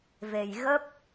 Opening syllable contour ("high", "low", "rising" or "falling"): low